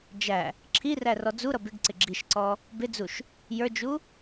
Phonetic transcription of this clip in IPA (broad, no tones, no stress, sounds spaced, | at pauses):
d͡ʒ æ | ǁʰ i r æ r ɔ d͡z u ɾ ʌ b ɪ ɡ ǀ ɪ ɡ͡ǁ i ʃ ǀ ɔ | b ɪ d͡z u ʃ | j ə˞ d͡ʒ u